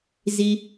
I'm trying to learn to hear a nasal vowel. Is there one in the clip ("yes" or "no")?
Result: no